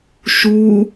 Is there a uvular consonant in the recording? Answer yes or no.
no